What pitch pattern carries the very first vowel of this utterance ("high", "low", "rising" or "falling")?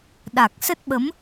low